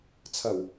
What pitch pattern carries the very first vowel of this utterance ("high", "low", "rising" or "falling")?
low